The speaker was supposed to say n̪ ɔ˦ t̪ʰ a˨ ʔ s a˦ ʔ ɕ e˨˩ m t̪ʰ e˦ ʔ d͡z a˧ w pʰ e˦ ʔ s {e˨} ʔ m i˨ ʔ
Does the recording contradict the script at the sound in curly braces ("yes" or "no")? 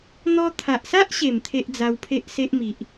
yes